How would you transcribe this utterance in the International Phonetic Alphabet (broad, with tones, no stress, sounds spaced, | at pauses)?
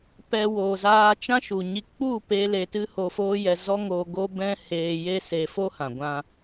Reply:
p ɛ˨ w oː˨ z aː˧ t͡ʃ ã˦ ʃ u˨ ɲ i˧ k͡p u˦˨ p e˧ l e˧ t ɨ˦ h o˧ f oː˦ j ɛ˧ z ɔ˦ ŋ o˧ ɡ o˦ b ɛ̃˦ h eː˧ j e˦ s e˧ f o˦ h ã˨ ɡʷ ã˧